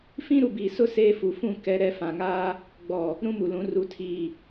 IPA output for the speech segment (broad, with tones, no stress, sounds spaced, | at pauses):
f ĩ˦ ɾ u˨ b iː˨ s ʊ˦˨ s eː˦ f u˨ f ũ˦˨ k ɛ˦ ɾ ɛ˦ f ã˨ ŋ aː˦ | ɡ͡b ɔ˨ | ɾ ũ˦ m u˨ l ũ˨˦ r u˨ tʰ iː˨